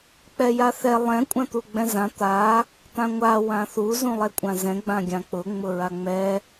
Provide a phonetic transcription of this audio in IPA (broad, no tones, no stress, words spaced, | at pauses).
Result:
k͡pɛjaθɛ lˠɛ̃ kʷʼãt̪uɡ͡bɛ̃zã t̪a | t̪ãŋʷa wãθu zũlˠɛkʷʼãzɛ̃ ɡ͡bãɡʲãk͡pʊ ŋ͡mʊɹaŋ͡mɛ